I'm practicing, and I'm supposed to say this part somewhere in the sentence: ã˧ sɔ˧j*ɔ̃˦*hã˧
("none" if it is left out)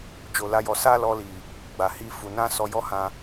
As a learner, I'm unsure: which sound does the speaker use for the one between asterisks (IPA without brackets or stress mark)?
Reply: ɔ˦